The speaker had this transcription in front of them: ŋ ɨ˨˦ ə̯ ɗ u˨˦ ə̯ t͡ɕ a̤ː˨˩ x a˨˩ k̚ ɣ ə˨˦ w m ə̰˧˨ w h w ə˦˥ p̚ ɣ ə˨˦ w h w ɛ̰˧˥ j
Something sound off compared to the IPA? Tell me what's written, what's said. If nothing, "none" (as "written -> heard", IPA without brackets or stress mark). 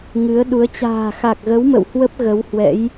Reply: none